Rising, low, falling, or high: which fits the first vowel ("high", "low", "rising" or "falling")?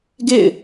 falling